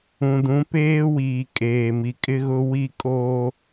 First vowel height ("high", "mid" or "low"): high